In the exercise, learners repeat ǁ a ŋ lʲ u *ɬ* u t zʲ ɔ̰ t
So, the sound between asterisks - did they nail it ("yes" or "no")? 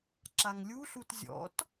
yes